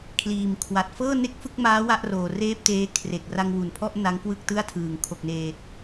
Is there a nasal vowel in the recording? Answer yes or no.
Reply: no